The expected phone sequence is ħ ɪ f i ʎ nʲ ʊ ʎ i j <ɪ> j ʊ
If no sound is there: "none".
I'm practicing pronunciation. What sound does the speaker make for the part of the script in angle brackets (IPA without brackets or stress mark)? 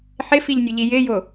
ɪ